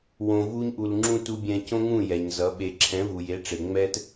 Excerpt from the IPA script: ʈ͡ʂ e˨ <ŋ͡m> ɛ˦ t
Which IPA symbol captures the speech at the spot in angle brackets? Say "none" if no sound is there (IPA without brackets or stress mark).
ŋ͡m